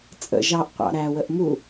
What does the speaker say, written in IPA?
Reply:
t͡sʼ ə̰ ʒ ɑ ʔ qʷ ɑ̰ ɾ æ w ə ʔ m u

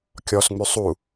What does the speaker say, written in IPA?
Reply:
kʲ ɔ s ŋ͡m ʉ sˤ u

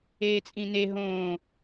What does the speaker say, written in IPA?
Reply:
eː t͡sʼ ĩ n e ɦ õː

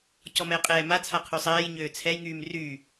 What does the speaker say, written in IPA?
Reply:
c ɔ m ɛː qʼ ɛː m a t͡sʰ a qʰ y sˤ ɛː j ɲ øː t͡sʰ ɛ j ŋ yː m r yː

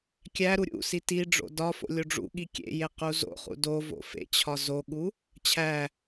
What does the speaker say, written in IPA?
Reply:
kʲ æ ɾ u ɾʲ ṵ s i t i ɖ͡ʐ o̰ d ɒ f o̰ lʲ o ɖ͡ʐ ṵ ɠ i kʲ ḛ j e q u z o̰ χ ṵ d o v o̰ f ḛ t͡ɕʰ ɒ z o ɠ u | t͡ɕʰ æ

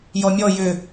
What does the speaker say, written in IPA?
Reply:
j ɔ mʲ ɔ j ʏ

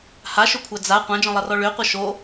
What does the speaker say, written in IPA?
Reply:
h a ʃ ɵ kʷʰ a d͡z a qʷ ã d͡ʒ ɔ̃ lˠ ʌ r ɔ ɭ ø qʷ ʌ ʃ o

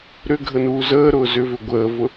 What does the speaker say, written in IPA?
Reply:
ɾ ʏ ɡʱ ə n uː z əː ɾ ʊː z ʏ v ʏ ɡʷ əː v ʊ

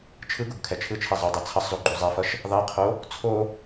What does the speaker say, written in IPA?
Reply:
t͡ʃʰ ɯ ɡ u ɡ kʰ ɛ t͡ʃʰ ɯ t͡ʃʰ ɛ zˤ u dˤ ɛ t͡sʰ ʌ sˤ z o ɡ͡ǃ u zˤ ɛ f ʌ ʃ | ðˤ i qʰ o | t͡sʰ o

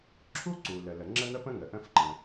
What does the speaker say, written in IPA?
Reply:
ǁʰ u˥ ǀ u˩ l ə˩ l ə˩ ŋ͡ǁ ə˥ n̪ ə˥ p ə̃˥ ŋ ə˩ ʔ ə̃˥ f ǃ ə̃˩

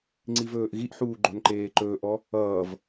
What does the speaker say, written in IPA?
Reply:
ŋ͡ǀ i v ɵː ʔ ɣ i ʔ ħ uː ɡ͡ǃ o̤ n ǃ eː ǃ ɵː ʔ ɔ | ʌː v

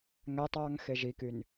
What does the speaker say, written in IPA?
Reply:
ŋ æ tˤ ɑ ŋ x e ʒ i k y n

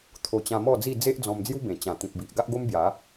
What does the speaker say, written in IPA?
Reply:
t̪ʰ o˧ t͡ɕ ã˧ m ɔ˥˧ d͡z i˥˧ d͡z e˦ ʔ d͡z ɔ̃˧ m d͡z j u˦ b ẽ˨˩ t͡ɕ ã˨˩ t̪ ĩ˨ p̚ b i˨ ʔ ɡ a˦ ʔ ɡ o˦ m b j a˨˦

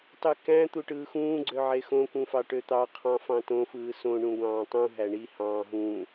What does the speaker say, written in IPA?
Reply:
tˤ y k æ̃ t̪ u ʈ ɯː x ũː ɡ͡ǀ ø ʕ e x õ k ũ f ɑ ʈ ø t̪ ɑ qʰ ɑ̃ f ɑ̃ t õ f ɯː s õ ɳ ũ ɡʷ ɑ̃ː tˤ ũ ɦ æ ɳ i h ɑ̃ː ɦ ũ

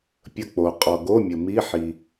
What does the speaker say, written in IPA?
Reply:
pʲ ə˦˨ k͡p o˨ qʼ ɔ˨ ɡ o˧˥˧ mʲ ə˨ m i˧˥˧ ħ i˨

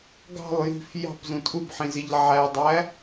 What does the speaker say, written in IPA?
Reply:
ɡ ɑ̤ lˠ j i̤ f j ɑ̤ p z ũ tʼ u b ħ ĩ z i ʎ ʕ æ dˤ æ

